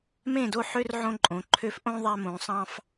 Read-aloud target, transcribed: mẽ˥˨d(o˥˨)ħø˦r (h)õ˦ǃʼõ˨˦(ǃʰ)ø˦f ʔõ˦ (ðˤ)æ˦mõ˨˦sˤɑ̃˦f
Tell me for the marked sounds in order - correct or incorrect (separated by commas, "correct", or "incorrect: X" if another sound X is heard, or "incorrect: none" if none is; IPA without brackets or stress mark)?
correct, incorrect: ʕ, correct, correct